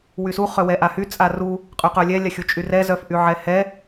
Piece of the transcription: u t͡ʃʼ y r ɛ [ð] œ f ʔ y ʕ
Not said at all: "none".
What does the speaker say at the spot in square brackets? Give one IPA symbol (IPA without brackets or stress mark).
z